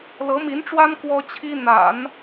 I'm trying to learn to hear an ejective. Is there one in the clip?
no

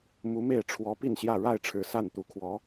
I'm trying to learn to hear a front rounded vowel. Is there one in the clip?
no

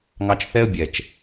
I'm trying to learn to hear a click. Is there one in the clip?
no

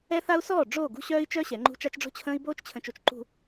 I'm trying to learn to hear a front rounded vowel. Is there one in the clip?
yes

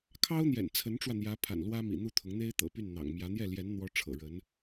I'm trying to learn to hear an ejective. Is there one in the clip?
no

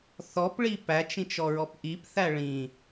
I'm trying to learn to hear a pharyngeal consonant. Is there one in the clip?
no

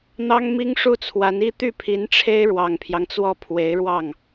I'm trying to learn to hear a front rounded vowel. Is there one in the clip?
yes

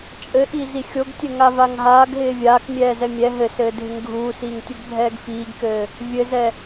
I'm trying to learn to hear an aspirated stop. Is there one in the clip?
no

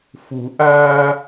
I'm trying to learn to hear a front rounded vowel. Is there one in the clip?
no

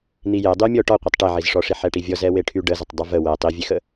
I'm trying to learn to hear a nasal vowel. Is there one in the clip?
no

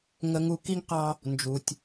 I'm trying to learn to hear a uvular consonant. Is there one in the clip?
yes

